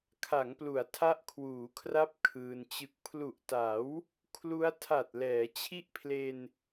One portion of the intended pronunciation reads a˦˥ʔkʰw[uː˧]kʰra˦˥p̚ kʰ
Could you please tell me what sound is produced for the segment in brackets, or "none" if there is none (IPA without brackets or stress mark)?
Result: uː˩˦